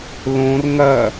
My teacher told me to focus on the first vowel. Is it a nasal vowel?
yes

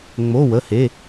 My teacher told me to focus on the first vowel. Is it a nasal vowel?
no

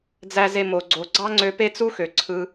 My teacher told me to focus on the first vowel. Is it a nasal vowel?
no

